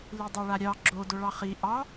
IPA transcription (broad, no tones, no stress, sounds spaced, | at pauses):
l i dˤ o ɭ a ɾʲ ɑ ɡ͡ǁ o d o ɭ ɑ χ i ʔ ɑ